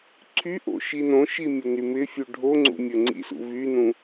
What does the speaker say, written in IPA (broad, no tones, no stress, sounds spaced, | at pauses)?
ǀʰ y ʔ o̰ ʃ i n õ ʃ i mʲ ʊ n y m ɪ fʲ u ɖʱ o ŋ͡ǀ ṵ mʲ ə ŋ͡ǀ ḭ s ṵ v y n ũ